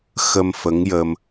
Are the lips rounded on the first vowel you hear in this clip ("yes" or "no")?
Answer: no